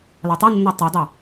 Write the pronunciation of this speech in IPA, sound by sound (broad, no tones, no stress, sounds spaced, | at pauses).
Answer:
l ɔ tˤ e nː o tˤ u dˤ a